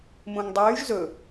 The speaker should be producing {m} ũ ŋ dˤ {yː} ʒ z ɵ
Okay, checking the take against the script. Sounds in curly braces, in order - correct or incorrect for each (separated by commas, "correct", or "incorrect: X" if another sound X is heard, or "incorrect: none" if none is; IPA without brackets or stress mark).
correct, correct